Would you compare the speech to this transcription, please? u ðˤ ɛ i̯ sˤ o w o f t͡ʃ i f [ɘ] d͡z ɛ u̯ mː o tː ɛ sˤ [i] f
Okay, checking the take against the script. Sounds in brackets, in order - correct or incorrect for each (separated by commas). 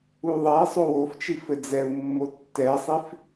correct, correct